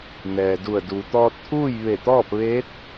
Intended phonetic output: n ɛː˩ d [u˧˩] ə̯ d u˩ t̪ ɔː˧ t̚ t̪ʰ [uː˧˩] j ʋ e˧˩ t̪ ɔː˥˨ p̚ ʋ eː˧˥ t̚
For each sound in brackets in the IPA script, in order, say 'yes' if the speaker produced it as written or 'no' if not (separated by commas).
yes, no